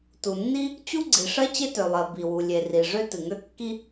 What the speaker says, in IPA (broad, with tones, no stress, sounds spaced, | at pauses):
t u˩ nː i˥ | t͡ɕ u˥ ɡ͡ǀ i˩ ʂ ɜ˥ t͡ɕ e˥ t ø˩ lˠ ɜ˩ b i˩ w u˩ lʲ e˩ r i˩ ʐ ø˥ t ɨ˩ ŋ ø˥ kː i˥